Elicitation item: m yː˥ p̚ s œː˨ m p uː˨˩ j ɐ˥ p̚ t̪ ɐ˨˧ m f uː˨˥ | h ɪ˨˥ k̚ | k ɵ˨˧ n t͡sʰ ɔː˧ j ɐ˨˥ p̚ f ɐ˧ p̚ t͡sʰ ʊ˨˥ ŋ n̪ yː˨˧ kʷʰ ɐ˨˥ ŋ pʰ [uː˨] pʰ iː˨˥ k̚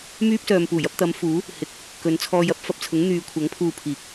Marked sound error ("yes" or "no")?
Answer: yes